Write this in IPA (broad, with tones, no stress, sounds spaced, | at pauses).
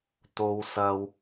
t̪ o˨ w s ɐ˨ w